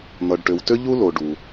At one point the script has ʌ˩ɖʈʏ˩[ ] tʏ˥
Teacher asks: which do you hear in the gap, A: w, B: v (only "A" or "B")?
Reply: A